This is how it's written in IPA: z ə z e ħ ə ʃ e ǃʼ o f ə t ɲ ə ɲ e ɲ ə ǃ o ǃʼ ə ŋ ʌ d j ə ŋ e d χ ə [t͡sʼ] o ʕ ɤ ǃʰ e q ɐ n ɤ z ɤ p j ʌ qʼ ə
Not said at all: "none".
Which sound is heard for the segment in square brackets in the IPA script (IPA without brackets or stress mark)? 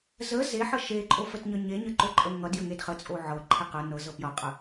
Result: t͡sʼ